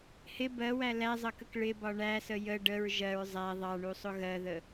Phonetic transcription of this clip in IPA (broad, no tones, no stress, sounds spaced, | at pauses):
h ɪ b ɜ w æ l æ zˤ ʌ k ə k ɭ ɪ b ɒ ɳ æ s ə j ə ɖ ə ɹ ʒ ɜ ɹ zˤ æ ðˤ ɑ ɳ u sˤ ʊ ɣ ɜ ð ə